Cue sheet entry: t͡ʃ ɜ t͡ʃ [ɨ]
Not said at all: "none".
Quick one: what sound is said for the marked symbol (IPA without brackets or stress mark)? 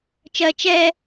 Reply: ɛ